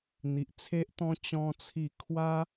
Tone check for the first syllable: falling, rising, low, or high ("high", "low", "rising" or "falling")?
low